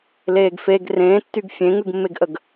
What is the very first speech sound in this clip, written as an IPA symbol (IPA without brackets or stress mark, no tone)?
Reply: l